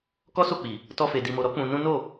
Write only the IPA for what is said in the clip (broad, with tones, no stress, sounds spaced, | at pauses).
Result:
k ɔ˦ s o˦˨ k͡p i˨ | t ɔ˧ f e˨ d i˨ m o˨ ɾ ɔ˨˦ k͡p ũ˧ n ũ˦ n o˦˨